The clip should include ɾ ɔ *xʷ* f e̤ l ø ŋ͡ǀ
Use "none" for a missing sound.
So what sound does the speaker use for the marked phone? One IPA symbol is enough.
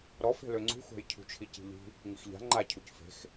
none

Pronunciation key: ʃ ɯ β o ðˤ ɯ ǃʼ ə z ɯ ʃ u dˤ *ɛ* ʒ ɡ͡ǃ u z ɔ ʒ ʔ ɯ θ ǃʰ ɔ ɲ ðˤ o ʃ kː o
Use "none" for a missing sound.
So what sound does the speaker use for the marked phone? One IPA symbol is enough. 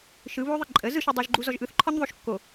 ɛ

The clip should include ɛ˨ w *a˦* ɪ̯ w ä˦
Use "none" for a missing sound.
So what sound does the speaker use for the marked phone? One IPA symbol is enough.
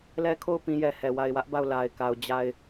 a˨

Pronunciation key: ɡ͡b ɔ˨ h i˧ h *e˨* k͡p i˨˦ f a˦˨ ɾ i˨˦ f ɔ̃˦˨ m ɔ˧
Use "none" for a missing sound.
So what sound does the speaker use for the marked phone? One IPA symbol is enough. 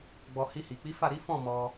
i˨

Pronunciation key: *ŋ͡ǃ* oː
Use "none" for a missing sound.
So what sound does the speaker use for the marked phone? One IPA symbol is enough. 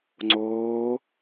ŋ͡ǀ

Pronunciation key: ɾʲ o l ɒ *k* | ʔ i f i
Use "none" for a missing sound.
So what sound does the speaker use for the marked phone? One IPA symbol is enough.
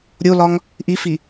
ŋ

